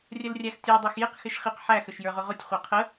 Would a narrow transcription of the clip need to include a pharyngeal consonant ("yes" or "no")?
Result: yes